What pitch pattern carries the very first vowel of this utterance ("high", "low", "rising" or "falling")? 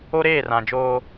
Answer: high